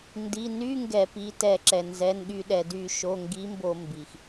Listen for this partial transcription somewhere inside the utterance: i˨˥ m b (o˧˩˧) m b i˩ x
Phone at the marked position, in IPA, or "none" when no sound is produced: o˧˩˧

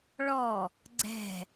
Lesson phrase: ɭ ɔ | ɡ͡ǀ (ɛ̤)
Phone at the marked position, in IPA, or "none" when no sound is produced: ɛ̤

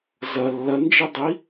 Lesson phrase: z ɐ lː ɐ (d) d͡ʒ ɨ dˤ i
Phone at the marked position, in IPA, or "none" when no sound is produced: n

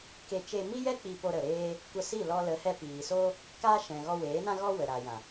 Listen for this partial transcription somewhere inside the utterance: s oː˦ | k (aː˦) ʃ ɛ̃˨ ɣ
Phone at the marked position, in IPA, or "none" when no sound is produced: aː˦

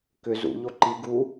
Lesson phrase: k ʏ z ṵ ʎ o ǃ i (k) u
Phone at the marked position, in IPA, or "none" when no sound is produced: ɡ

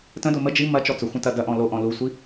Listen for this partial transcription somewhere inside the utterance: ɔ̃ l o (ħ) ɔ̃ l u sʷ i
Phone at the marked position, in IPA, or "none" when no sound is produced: ʔ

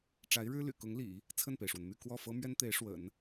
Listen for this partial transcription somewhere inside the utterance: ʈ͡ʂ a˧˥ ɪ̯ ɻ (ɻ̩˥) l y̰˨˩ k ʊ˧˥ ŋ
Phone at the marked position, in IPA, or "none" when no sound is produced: ɻ̩˥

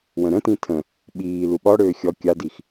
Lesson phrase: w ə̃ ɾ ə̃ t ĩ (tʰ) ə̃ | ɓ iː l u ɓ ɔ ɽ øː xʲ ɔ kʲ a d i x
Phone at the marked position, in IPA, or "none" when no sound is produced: tʰ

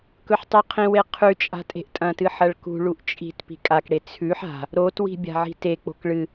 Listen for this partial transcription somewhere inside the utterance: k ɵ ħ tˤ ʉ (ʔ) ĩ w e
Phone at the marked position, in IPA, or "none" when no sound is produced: qʰ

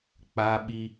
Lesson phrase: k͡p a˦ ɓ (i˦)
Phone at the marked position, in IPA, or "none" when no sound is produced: i˦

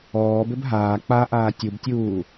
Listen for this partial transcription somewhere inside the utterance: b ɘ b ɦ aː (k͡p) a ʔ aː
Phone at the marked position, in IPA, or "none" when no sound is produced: k͡p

